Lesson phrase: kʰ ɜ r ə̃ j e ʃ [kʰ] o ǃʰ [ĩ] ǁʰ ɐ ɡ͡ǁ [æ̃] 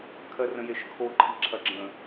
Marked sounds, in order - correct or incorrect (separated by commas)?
correct, incorrect, incorrect